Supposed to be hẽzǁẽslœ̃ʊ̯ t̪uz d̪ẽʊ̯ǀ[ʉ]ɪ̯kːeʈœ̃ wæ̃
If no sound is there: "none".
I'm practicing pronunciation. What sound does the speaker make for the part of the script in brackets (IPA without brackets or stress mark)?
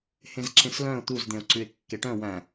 ʉ